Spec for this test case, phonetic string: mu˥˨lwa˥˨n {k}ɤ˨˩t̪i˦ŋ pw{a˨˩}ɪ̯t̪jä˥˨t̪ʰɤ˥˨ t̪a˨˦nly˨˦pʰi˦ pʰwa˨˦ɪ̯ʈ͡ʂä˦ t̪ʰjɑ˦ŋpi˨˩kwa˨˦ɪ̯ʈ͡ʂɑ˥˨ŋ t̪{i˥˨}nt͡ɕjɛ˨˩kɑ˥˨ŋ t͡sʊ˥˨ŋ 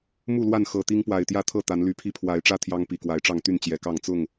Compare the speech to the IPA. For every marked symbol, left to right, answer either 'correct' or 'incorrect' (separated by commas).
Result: incorrect, correct, incorrect